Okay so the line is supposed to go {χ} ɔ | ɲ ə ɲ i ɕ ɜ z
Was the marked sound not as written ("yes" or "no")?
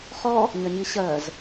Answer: no